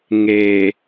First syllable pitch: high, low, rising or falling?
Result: low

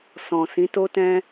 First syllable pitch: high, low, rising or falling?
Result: low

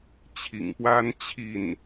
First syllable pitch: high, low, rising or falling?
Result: low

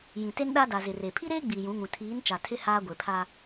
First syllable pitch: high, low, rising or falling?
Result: low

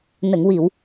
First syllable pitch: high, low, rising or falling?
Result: low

